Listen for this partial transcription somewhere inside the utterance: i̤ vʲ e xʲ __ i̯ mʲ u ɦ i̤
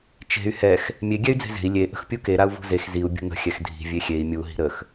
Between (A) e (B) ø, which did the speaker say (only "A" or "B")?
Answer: A